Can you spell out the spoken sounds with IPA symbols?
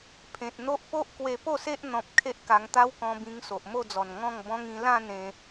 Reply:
pʰẽ˨t̚n̪o˦ʔ po˦ʔ kwe˧po˥˧se˦ʔ n̪ɔ̃˨p̚ kʰe˦ʔka˧ŋ t̪a˦wkɔ̃˧bĩ˧ŋ so˨ʔmo˥˧d͡zɔ˨˩n ŋɔ̃˥˧ŋbɔ̃˦ŋ ĩ˧lã˥˧n ẽ˧

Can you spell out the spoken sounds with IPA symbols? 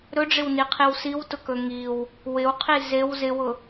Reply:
ɾɵɖ͡ʐɪwniqʰiw siwtʊkɵ ŋiw | wɪwqʰi zew zɪwʊ

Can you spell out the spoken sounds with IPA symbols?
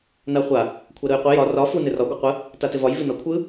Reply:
naχʷa | kʷʰaɾɯjqʷi jɒ rɒ fu nɪrɒ ɡʷɯqʷɯ | tatɪvɒj vinɒkʷʰɯ

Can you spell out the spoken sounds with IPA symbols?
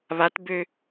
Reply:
βatbø

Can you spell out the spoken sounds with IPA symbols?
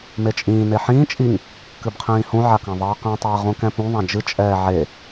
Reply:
met͡ʃʼĩː neħĩː t͡ʃʼiŋ | kɨbqʰĩːhũ ʕakãðˤɛːqɛ̃ tˤɛːʁũkɛ̃pũ ðˤãd͡ʒɨ t͡ʃʼɛːʕe

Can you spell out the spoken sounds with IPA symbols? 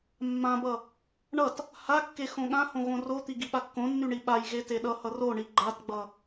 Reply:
mːãbʌ | ɳʌt | hakːe xõɠãhõ ɣõrot̪i ɡiɓakːõnːy ɳiɓajɣe teɗʌhʌ roɳi ɡ͡ǃatɡ͡bʌ

